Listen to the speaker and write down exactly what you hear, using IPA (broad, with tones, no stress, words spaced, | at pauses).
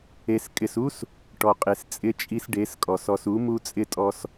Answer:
e˨s kʼɪ˨su˦s | ʈɔ˨qʼe˨s t͡sʼɪ˦t͡ʃʼi˦sɖe˨˦skʼɔ˨s ɔ˨su˨˦ mu˦t͡sʼɪ˦tʼɔ˦s